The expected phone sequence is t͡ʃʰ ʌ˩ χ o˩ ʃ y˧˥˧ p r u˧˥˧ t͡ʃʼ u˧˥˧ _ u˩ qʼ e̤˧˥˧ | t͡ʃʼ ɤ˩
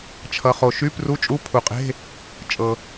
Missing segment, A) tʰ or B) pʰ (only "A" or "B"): B